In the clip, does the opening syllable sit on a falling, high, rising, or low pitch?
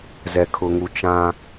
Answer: low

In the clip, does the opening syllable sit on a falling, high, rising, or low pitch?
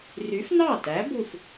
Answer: rising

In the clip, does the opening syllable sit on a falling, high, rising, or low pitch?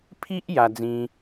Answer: high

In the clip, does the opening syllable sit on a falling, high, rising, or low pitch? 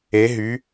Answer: rising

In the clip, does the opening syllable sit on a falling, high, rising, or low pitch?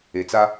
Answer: low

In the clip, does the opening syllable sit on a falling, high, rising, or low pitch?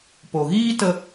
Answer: low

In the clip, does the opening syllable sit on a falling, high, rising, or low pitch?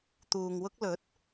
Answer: low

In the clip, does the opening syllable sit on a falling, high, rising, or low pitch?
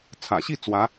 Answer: low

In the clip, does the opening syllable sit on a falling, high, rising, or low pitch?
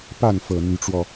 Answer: falling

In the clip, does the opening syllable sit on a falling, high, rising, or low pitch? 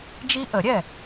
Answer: high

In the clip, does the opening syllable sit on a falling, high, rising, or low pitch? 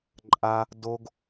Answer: high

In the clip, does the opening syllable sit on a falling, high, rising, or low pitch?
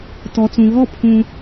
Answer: low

